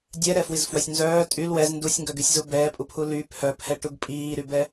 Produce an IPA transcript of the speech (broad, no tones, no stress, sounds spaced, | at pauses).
dʲ ɛ ɾ ɛ f w i z f w œ sʲ n z œː tʼ y l w ɛ z n d u sʲ ŋ ɡ œ ɡ y sʲ z u b ɛː pʼ u pʰ u l y pʰ œ pʰ ɛ ʈ u ɡ pʼ iː ɾ y b ɛ